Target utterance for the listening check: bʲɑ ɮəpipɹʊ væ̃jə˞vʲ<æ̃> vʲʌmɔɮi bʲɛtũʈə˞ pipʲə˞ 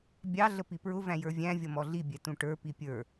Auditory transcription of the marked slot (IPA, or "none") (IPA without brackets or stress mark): æ̃